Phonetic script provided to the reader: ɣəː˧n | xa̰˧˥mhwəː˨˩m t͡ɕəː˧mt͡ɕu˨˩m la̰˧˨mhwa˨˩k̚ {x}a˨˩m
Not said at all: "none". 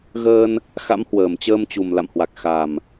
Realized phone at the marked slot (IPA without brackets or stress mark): x